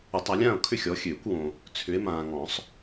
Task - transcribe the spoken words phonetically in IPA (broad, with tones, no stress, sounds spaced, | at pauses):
ə˨˩˦ tˤ a˨˦ lʲ ãː˥˨ o̯ kʰ ʏ˥˨ xʲ ɔ˨˦ xʲ øː˨˩˦ kʷ w õ˨ | t͡sʰ ʏ˨˦ e̯ m ãː˨ ŋ ɔ̃˨˩˦ sˤ